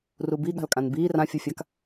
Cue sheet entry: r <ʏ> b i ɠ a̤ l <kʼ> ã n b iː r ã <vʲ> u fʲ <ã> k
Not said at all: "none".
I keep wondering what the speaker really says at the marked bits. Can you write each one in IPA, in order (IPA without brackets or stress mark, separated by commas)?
u, kʼ, fʲ, a